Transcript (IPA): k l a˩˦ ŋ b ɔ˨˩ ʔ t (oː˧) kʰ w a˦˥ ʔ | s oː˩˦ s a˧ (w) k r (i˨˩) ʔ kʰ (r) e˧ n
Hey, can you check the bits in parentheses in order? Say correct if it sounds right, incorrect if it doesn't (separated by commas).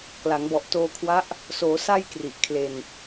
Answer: correct, incorrect, correct, incorrect